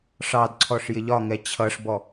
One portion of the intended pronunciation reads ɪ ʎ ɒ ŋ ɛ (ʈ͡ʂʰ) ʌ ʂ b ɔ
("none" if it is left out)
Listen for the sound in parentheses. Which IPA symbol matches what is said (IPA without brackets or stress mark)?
t͡ɕʰ